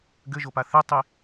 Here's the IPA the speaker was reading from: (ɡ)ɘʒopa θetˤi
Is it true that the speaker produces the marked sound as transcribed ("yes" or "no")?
yes